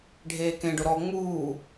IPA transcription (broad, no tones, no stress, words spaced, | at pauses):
ɖʱeːkẽɖʊ ɾɔ ŋ͡muː